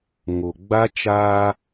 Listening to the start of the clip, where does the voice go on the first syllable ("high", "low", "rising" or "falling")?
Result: low